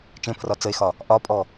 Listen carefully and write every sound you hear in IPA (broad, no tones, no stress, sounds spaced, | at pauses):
t͡ʃ ẽ pʰ r ɒ t͡s ə e̯ x ɒ | ʔ ɒ pʼ ɔ